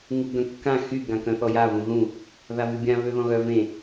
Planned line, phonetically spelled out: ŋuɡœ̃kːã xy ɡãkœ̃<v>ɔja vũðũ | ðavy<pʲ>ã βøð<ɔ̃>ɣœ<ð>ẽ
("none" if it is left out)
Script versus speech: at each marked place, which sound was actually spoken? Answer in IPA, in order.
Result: θ, bʲ, ɔ̃, v

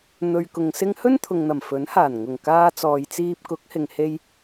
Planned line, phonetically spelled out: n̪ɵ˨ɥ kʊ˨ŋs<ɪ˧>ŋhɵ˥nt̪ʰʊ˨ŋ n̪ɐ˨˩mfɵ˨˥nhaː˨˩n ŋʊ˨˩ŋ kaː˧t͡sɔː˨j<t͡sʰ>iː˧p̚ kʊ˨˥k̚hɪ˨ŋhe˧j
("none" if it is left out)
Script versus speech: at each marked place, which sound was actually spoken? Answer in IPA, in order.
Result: ɪ˧, t͡s

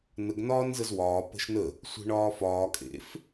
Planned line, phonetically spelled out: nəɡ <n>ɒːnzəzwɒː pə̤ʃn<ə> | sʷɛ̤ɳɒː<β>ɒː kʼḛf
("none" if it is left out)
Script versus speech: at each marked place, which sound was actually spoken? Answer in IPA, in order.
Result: n, ə, f

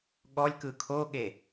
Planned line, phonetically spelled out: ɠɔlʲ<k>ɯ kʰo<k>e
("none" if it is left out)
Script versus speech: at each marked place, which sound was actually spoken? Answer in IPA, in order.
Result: k, ɠ

